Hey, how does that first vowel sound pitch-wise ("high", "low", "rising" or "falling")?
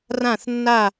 falling